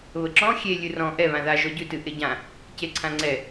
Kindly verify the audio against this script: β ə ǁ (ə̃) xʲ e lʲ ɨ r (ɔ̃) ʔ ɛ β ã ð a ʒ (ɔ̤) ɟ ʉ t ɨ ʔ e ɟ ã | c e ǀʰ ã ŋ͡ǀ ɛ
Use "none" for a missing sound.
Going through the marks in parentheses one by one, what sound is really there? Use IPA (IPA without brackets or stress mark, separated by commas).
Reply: ɔ̃, ɔ̃, ɔ